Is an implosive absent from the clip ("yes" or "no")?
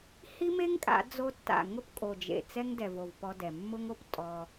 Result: yes